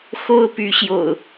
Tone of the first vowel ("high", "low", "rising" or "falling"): high